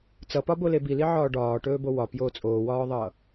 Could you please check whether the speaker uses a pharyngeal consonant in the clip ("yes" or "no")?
yes